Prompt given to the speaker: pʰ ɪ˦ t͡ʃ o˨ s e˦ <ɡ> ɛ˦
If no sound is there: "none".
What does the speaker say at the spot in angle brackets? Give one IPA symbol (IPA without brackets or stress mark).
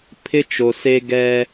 ɡ